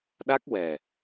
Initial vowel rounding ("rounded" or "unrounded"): unrounded